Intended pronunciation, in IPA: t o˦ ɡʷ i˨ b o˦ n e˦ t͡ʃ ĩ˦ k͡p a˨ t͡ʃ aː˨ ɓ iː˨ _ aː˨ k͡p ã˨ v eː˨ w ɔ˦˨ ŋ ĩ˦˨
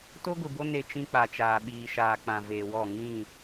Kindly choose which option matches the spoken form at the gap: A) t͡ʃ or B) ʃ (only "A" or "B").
B